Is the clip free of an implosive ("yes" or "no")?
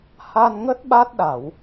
no